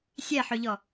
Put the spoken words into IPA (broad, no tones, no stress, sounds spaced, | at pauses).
sʲ ɛ ħ ɵ ʎ ɔ